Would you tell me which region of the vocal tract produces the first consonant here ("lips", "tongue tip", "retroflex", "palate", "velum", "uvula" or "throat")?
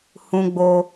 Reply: throat